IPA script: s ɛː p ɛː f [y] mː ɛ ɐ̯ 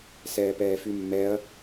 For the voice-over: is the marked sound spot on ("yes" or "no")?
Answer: yes